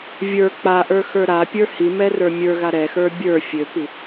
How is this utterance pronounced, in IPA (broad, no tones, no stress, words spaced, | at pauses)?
vʲə˞ k͡paʔə˞xə˞ ɾapʲə˞ himɛrə˞ mʲə˞ɣa ɾɛxə˞ bʲə˞ fʲøpi